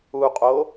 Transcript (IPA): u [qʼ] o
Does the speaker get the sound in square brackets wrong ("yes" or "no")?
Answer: no